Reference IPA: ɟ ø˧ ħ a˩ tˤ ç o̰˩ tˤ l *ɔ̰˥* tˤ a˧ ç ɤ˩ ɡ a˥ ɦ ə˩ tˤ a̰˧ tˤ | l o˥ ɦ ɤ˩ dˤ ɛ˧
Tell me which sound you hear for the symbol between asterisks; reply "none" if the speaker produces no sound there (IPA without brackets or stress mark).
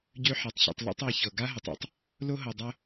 o̰˥